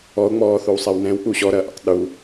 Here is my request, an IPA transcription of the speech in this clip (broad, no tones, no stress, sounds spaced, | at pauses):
ɔ o̯ ŋ͡m ɔː θ o w sˤ ɛ w n ɛ̃ w k͡p u ɕ ɔ ɾ ɐ ʔ ɛ̰ tˤ ɗ u